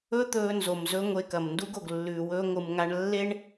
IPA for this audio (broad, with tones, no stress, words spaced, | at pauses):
ɵ˦ t̪ɵː˦nzo˨mzɵ˦ ŋʷe˧kɐ˨mndu˦ɡ o˨ɡlːʉː˨wɵː˧ ŋʷɨ˨mŋa˧ɳ lːe˦ɳ